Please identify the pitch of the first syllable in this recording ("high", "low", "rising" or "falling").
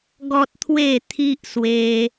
high